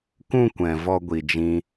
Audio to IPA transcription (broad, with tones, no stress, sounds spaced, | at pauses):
k ũ˧ kʷ ɛ̃˨ v ɔ˦ ɡʷ i˧ d͡ʒ ĩ˦